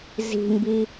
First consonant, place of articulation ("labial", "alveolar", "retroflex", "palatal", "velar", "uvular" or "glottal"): alveolar